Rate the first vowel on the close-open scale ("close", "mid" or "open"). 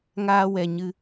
open